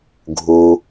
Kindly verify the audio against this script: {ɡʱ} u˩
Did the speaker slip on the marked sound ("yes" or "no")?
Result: no